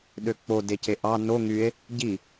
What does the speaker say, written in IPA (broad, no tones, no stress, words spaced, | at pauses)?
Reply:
ɗøk͡po deceʔɑ no ŋye̯ | ɟi